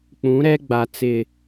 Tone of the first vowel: rising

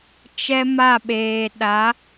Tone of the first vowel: high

